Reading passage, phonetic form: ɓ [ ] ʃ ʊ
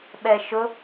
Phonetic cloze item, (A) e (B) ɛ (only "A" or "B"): B